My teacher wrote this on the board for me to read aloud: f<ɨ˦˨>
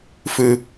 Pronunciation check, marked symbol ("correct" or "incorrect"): incorrect